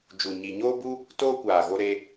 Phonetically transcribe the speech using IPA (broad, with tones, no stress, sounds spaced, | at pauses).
d͡ʒ u˨ ɲ i˨ ɲ oː˦ b u˦ | t oː˦ kʷ aː˨ ɣ o˧ ɾ eː˧